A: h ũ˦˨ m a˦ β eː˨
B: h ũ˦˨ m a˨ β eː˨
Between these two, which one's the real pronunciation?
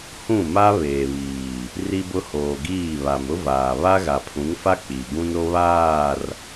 A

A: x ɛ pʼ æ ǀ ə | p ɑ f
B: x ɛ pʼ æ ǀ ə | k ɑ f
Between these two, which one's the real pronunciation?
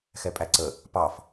A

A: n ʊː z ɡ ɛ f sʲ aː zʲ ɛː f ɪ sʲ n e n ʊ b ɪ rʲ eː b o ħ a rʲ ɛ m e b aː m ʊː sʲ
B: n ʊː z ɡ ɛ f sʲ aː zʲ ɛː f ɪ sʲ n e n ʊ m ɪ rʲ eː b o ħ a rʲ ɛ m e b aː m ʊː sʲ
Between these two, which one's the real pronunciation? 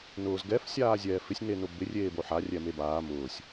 A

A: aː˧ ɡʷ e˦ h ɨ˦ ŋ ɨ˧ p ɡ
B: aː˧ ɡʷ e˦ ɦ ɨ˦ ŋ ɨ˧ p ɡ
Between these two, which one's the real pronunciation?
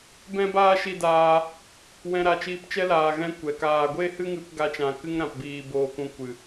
A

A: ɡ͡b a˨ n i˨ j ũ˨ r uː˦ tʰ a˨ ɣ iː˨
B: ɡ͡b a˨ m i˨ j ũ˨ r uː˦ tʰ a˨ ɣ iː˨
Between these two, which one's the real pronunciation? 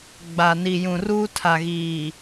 A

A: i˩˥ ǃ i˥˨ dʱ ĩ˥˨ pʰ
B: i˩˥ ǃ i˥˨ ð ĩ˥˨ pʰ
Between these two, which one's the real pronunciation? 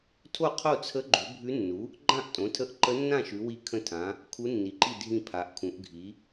A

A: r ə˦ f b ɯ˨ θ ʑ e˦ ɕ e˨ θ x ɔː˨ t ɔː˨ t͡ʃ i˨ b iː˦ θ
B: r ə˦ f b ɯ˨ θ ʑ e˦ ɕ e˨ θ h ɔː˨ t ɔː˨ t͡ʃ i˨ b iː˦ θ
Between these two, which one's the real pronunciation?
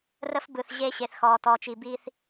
A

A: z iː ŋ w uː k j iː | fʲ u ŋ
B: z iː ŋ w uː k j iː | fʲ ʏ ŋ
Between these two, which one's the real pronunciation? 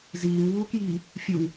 A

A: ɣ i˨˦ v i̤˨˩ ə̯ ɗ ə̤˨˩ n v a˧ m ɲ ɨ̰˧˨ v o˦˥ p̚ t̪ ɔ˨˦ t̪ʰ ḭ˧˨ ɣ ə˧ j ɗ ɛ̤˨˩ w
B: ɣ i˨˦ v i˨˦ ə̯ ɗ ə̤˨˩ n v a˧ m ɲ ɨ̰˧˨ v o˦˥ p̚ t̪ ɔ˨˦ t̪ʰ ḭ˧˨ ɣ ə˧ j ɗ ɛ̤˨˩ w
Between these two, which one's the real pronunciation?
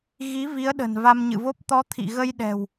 B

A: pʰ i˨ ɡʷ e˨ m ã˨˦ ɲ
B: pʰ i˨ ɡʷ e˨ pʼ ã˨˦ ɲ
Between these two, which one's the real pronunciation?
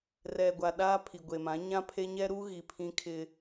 A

